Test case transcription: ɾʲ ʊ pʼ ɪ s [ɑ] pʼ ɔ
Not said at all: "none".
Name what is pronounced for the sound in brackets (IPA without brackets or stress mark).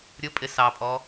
ɑ